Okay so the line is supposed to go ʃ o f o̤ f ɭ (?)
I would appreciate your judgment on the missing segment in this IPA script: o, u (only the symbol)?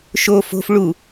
u